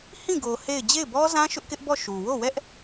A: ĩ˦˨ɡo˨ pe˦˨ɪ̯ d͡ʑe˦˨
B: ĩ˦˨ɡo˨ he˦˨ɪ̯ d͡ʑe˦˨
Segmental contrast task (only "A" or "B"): B